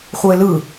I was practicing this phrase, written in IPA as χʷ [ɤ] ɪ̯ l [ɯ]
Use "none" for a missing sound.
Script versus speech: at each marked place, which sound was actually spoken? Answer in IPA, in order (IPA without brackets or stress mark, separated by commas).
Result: ɤ, ɯ